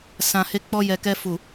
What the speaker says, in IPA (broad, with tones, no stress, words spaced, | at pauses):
sã˨he˧k͡pɔ˧ jɛ˨kɛ˧ fu˨